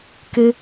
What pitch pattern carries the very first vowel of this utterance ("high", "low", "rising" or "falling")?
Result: high